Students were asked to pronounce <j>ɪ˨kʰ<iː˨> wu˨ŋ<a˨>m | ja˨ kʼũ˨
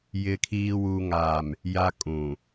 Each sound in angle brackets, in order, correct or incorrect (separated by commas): correct, correct, incorrect